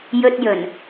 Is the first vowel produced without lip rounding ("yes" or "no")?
no